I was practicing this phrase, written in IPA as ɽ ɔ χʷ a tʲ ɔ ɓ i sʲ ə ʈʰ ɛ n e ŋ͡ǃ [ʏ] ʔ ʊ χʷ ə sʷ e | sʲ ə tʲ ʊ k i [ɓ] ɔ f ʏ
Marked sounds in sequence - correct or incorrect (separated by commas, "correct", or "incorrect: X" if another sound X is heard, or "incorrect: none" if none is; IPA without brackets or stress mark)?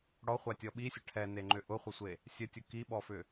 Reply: correct, correct